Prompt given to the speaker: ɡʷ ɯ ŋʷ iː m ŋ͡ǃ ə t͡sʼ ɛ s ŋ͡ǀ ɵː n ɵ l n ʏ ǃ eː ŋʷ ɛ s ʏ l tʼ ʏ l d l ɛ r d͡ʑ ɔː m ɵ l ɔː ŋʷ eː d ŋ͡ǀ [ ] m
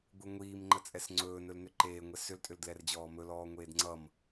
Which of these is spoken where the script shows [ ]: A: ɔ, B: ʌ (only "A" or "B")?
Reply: B